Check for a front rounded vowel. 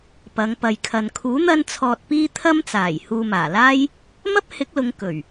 absent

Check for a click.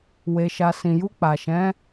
absent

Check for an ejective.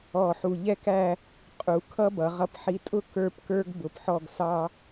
present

